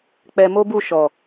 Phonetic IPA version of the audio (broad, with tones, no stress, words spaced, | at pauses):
k͡pɛ˧ mo˦bu˦˨ ʃɔ˨